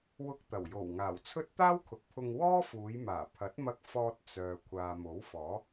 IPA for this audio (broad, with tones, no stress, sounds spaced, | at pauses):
w ʊ˧ k̚ t̪ ɐ˨˩ w j o˨˩ w ŋ aː˨˩ w t͡sʰ ɵ˥ t̚ t̪ aː˥ w kʰ ʊ˨ k̚ pʰ ʊ˧ ŋ w ɔː˥ f uː˨˧ j m aː˨˩ pʰ ɐ˨˥ t̚ m ɐ˧ k̚ f ɔː˧ t̚ t͡s œː˨ kʷʰ aː˨ m o˨˥ w f ɔː˨˥